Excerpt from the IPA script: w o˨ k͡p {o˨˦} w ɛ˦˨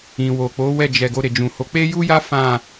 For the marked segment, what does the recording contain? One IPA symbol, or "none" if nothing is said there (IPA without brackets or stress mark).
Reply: o˨˦